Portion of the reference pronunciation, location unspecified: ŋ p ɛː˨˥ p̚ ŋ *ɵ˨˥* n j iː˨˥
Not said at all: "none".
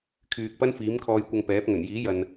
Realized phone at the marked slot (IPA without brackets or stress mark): ɵ˨˩